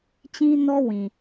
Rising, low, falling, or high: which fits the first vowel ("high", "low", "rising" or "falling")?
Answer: high